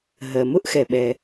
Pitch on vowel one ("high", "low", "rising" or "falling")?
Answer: low